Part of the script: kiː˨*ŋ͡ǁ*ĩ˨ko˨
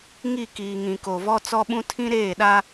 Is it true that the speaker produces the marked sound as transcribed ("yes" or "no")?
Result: no